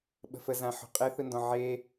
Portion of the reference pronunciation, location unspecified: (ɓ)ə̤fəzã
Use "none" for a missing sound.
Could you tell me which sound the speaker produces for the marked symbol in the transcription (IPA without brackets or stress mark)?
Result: ɓ